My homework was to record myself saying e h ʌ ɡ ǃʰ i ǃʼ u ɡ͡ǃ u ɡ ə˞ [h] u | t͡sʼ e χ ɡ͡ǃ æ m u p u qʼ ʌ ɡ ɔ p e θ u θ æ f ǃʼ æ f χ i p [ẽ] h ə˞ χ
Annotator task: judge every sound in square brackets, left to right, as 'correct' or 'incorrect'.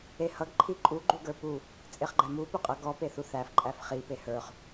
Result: incorrect, incorrect

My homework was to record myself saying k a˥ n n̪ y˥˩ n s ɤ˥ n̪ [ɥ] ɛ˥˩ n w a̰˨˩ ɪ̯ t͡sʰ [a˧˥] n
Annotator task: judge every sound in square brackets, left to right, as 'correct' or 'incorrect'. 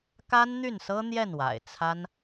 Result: incorrect, incorrect

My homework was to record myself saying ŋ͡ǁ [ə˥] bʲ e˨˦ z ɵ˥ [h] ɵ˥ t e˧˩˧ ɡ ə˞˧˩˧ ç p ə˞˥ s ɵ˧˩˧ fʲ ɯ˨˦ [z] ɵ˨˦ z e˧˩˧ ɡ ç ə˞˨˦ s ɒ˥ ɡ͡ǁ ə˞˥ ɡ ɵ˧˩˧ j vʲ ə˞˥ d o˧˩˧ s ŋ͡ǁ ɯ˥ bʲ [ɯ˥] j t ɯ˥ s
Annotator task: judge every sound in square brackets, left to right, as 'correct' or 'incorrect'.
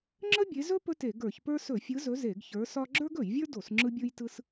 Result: correct, incorrect, correct, correct

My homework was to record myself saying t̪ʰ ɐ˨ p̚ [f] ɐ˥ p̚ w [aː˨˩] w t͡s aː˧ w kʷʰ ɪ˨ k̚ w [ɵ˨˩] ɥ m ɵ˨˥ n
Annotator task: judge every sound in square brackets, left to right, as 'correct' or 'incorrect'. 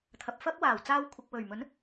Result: correct, correct, correct

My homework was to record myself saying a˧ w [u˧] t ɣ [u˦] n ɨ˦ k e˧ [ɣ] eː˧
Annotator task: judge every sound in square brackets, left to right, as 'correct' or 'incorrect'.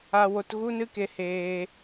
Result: incorrect, correct, incorrect

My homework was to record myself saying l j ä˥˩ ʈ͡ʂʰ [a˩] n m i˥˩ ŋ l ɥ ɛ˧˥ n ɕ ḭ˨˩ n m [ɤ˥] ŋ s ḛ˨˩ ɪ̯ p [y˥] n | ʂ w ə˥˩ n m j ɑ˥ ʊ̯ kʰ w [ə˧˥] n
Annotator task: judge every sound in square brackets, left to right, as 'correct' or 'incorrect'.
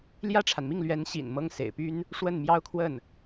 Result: correct, correct, correct, incorrect

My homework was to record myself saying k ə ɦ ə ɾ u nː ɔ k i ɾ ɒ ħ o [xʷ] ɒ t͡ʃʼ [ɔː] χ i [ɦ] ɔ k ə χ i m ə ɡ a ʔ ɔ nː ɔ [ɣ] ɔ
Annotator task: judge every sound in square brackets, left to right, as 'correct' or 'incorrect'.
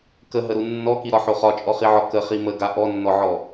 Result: incorrect, incorrect, incorrect, incorrect

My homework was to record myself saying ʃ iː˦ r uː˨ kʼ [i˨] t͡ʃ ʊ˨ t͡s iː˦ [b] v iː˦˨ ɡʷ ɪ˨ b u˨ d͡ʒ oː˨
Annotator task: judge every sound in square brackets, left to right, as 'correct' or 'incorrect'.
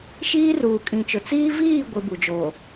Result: incorrect, incorrect

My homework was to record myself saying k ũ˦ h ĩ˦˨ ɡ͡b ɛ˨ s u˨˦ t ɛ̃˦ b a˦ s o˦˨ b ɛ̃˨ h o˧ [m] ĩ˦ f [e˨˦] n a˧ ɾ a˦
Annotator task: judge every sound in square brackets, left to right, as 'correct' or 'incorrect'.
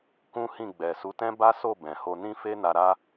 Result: incorrect, incorrect

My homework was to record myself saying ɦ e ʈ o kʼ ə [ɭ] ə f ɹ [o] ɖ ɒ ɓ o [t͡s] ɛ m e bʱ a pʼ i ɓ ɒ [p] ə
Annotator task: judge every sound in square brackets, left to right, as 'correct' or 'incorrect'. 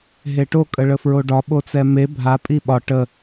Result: correct, correct, correct, incorrect

